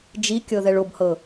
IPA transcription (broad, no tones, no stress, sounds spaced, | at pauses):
d͡ʒ i kʲ ɤ ð ɛ ɭ o b h ɤ